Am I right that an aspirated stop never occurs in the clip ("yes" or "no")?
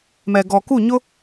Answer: yes